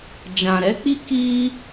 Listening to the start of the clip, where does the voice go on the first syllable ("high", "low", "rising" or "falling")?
low